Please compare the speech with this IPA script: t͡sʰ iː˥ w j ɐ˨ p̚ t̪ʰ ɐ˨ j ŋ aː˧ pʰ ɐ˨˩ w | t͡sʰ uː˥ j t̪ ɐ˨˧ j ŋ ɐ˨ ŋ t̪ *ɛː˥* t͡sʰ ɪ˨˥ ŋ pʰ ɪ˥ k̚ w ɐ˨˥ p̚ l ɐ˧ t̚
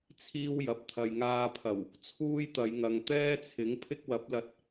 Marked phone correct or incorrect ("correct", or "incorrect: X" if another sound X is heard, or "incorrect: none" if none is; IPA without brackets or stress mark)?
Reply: correct